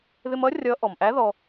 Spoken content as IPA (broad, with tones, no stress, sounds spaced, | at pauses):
ð ɪ˧ m ʌ˧˥ rʲ ʌ˧˥ ʔ ɔ˩ m ʔ æ˧˥ ð ɔ˧